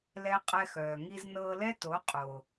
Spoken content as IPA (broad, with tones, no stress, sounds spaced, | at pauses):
l ɛ˦ qʼ ɛ˧ x œː˨ ŋ i˧ z n ɤː˧ l ɛ˦ t o˨˦ qʼ o˨